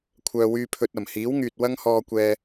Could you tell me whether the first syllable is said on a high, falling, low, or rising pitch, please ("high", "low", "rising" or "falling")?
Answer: low